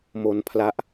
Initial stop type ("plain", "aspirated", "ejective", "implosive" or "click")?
aspirated